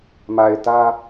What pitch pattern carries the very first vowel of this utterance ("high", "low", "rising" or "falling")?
low